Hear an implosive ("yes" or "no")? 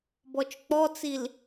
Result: no